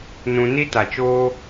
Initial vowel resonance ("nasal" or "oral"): nasal